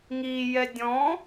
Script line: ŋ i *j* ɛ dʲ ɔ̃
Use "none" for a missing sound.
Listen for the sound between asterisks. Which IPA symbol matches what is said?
j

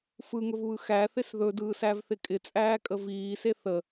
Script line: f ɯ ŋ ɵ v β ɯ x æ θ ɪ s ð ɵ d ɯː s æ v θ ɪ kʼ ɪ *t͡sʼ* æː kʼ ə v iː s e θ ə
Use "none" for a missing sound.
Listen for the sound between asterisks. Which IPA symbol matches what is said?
t͡sʼ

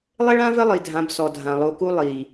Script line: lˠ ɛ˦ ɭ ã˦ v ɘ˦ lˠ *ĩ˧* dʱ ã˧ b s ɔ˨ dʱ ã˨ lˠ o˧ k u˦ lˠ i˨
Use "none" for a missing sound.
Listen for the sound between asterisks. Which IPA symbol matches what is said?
i˧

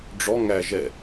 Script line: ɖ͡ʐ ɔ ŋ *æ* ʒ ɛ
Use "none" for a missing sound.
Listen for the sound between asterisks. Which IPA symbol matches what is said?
æ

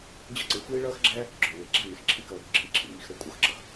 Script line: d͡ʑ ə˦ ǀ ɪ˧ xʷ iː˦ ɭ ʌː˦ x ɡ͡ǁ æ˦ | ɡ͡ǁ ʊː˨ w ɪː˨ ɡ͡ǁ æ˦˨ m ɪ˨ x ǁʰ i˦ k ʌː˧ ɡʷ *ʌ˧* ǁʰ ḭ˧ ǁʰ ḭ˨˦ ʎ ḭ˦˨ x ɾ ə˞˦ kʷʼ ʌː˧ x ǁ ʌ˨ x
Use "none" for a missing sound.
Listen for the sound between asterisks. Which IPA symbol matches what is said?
ə˧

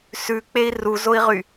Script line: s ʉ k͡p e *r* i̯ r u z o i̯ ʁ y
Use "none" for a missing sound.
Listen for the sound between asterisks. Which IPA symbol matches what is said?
none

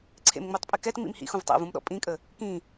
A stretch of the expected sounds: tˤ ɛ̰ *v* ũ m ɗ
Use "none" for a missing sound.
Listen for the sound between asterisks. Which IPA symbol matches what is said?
v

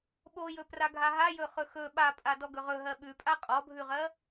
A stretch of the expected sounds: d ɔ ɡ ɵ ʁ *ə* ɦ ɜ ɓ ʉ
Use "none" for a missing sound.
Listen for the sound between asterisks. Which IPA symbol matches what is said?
ɵ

